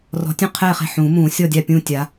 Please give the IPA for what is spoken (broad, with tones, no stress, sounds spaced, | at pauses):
r ɔ̤˨˦ tʲ ũ˥˨ qʰ ɛː˥˨ χ e̤˥˨ ħ ũː˨˩˦ m ũː˨˩˦ sʲ ɔ˥˨ dʲ a˥˨ pʲ ũː˥˨ tʲ a˨˦